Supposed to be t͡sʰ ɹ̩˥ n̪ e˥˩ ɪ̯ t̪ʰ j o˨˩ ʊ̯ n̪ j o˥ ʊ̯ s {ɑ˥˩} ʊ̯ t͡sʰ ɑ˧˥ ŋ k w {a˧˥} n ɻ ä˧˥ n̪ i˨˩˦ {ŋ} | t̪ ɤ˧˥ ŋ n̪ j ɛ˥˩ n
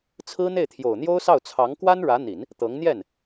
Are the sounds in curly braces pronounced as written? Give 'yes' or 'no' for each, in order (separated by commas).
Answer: yes, no, no